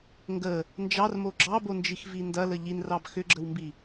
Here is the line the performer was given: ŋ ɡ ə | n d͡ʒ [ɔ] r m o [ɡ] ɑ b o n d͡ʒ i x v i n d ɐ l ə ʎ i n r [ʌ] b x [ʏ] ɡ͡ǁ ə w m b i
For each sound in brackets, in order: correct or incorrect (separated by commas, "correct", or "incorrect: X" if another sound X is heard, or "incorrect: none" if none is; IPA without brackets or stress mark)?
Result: incorrect: ɑ, incorrect: ɡ͡ǁ, incorrect: ɑ, correct